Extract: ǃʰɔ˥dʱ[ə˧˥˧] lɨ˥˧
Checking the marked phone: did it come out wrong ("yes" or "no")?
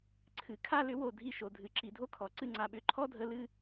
no